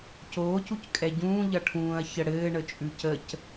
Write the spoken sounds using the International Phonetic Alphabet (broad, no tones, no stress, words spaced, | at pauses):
coːcuc kʼɛɟũː ʎʌʈʰũːɐ̯ çəɽɘːɳə t͡ʃʼʉcəc